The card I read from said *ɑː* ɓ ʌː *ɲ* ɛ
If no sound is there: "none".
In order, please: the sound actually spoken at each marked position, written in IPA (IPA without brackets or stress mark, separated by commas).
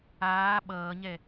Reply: aː, ɲ